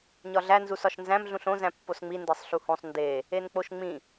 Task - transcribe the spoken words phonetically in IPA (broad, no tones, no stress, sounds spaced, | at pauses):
ɲ ɒ ɮ æ n z u s ɒ ʃ n z æ̃ m ɮ ũ ɬ õ z æ̃ pː o s ŋ͡m i n d e sˤ ɬ u h õ sˤ n d e | e n k͡p o ʃ ŋ͡m ĩ